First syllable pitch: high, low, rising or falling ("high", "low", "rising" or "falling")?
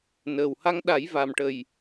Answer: low